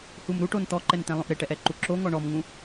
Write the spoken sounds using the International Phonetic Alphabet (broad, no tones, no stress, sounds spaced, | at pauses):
h u m ɾ u ʈ o n t̪ ɔ ǃ ɛ n t̪ ɛ̃ lˠ õ ʔ ɾ ɪ ʈ ɛ ʔ ɛ ǃ u ǁ o ŋ ɔ ɳ ɔ m ŋ ũ